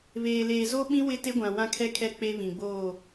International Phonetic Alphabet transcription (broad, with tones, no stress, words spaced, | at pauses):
βeː˨leː˨zo˦ɓĩ˦ wɪ˦te˦ɡʷã˨ wã˦kʰɛ˦kʰɛ˦ k͡pe˦βĩ˨ɡ͡boː˦˨